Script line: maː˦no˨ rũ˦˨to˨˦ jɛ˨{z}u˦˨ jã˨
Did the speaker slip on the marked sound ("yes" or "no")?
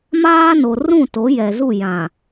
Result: no